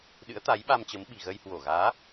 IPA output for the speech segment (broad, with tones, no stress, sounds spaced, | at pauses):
ɗ ɨ̰˧˥ ə̯ t̪ a˨˦ j ɓ a˧ m t͡ɕ ə˨˦ m ɓ i̤˨˩ ɣ ə˧ j h w o˧˩ ɣ aː˨˦